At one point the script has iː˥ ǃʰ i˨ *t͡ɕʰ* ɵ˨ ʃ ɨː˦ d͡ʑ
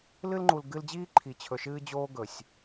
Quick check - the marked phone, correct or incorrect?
correct